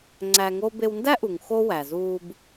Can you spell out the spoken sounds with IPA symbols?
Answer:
ŋ͡ǀ æ˧ ŋ o˦ b e˧ w n d æ˦ ʔ u˨ ŋ x o˦ w æ˨ z uː˧ b

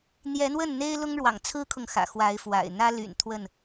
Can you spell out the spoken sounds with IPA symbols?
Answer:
n̪ j ɛ˨˦ n̪ w ə˥˨ n n̪ e˦ ɪ̯ l ʊ˦ ŋ ɻ w ɑ̰˨˩ ŋ t͡sʰ ɹ̩˦ kʰ ʊ˨ ŋ x ä̰˨˩ x w a˨˦ ɪ̯ f w a̰˨˩ ɪ̯ n̪ ä˦ l y̰˨˩ n t̪ʰ w ə˥˨ n

